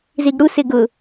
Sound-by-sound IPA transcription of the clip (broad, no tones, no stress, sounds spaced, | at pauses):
z i ɡ ɽ u s ɪ ɡ ʊ